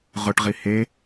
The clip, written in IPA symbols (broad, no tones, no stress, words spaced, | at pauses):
ʁʊʈʁi he